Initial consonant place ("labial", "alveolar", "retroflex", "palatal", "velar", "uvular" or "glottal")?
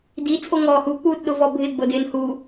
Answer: alveolar